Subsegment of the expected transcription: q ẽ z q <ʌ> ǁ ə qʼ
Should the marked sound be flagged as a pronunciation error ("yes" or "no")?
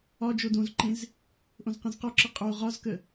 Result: yes